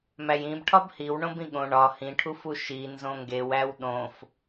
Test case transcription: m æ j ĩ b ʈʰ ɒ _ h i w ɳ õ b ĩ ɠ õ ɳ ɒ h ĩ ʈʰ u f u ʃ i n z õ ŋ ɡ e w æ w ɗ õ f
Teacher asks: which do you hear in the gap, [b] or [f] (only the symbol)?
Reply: b